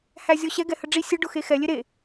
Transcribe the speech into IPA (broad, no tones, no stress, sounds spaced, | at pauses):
h æ zʲ ɔ ɕ ɛ ɡ ɛ h ə ɖ͡ʐ i sʲ ə ɖ ʊ x e x ɛ lʲ e ɾ e